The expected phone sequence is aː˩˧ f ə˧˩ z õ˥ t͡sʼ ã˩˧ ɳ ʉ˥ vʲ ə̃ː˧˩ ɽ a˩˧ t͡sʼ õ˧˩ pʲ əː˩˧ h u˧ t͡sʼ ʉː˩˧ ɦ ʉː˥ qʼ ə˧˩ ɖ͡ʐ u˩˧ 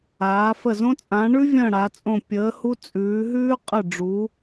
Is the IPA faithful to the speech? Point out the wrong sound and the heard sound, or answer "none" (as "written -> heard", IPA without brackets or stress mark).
none